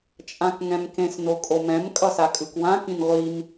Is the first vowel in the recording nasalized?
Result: yes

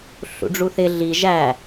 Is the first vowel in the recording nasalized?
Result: no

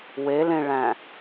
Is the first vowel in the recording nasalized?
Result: no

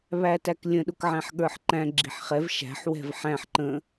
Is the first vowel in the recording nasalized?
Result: no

